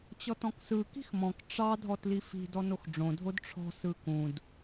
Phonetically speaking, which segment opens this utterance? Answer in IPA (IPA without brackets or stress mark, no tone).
t͡ɕ